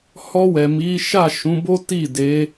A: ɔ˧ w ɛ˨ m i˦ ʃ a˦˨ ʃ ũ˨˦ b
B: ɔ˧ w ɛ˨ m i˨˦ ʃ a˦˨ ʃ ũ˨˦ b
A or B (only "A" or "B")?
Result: B